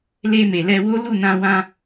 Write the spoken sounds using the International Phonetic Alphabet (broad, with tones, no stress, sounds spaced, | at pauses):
l e˧ m e˨ l ɛ˧ w o˦ l u˦˨ n ã˧ w ã˧